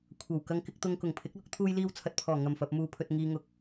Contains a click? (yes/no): no